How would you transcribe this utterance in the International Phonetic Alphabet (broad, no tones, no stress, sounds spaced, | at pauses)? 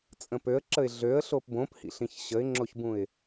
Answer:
t͡sʼ ə̃ p ø ə̯ ǁ ə ɪ̯ ɮ ø ə̯ ɬ o p b õ p h ḭ ɬ ĩ ç ɕ ə ɪ̯ ŋ͡ǁ o ç b ũ ɪ̯